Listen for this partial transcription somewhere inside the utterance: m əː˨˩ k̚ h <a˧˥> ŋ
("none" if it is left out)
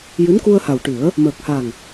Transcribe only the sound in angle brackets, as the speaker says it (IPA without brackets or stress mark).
a˨˩